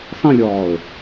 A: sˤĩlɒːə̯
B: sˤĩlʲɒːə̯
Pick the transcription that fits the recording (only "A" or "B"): B